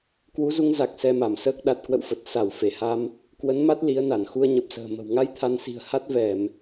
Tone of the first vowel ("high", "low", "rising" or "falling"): rising